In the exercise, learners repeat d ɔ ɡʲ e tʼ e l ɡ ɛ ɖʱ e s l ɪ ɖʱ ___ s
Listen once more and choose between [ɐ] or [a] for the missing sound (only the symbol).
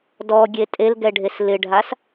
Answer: a